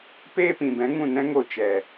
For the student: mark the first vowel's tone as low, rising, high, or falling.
high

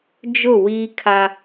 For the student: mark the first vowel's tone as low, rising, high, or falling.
falling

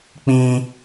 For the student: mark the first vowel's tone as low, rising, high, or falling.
high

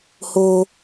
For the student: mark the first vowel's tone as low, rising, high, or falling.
high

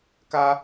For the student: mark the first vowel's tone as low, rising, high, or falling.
high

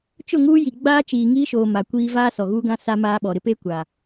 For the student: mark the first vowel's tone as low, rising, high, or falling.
falling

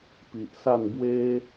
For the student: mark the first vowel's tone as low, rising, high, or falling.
low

